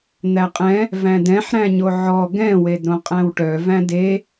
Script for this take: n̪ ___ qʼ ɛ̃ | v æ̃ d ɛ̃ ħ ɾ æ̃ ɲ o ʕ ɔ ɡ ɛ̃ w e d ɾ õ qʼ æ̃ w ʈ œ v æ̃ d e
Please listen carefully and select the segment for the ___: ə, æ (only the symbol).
æ